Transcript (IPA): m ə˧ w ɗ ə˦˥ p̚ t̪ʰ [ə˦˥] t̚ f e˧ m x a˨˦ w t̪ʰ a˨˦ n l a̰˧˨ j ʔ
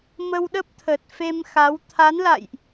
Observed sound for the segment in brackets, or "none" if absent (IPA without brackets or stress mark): ə˨˩